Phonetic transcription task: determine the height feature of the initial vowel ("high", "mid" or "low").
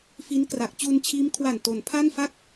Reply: high